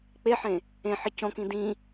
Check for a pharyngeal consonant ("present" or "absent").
present